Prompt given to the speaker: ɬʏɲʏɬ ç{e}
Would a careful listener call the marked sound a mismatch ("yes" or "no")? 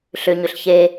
no